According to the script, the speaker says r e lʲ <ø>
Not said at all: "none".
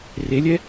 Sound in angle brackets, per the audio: ɛ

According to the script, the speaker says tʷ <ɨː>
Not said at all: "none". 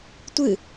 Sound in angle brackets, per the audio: ɨ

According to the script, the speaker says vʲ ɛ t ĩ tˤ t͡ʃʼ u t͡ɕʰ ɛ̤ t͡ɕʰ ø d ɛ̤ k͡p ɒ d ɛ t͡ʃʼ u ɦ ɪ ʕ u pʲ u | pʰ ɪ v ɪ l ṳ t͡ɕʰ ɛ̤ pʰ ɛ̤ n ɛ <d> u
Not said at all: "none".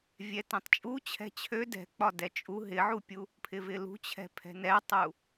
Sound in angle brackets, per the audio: tˤ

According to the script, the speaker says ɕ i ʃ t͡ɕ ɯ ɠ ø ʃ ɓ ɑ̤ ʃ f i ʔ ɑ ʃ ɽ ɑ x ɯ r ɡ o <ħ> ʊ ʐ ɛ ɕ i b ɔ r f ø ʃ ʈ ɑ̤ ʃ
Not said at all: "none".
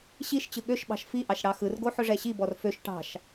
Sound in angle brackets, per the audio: ħ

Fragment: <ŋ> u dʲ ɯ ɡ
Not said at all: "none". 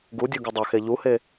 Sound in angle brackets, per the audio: ɡ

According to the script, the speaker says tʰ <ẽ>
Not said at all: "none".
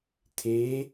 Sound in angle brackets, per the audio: e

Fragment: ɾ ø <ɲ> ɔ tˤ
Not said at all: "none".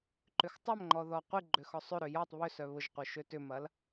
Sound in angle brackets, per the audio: j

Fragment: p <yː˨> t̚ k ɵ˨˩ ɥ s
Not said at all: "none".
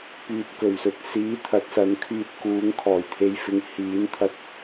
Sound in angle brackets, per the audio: yː˨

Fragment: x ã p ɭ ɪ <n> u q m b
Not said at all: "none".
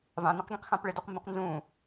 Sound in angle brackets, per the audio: d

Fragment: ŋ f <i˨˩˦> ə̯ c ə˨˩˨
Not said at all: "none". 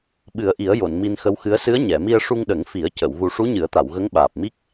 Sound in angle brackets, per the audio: i˨˩˦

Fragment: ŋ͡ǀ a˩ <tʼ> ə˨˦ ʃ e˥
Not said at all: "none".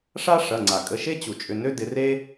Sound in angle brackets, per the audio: kʼ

